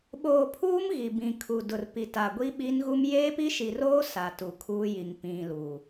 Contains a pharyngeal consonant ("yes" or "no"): no